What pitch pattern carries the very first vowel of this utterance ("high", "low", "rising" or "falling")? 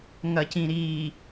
low